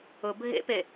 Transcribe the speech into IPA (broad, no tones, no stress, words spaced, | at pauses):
ʊ bʱḛpe